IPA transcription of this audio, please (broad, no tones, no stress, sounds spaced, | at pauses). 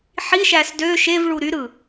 ħ i ʃ æ s d ø ʃ e v ɭ u ɾ y ɾ ɯ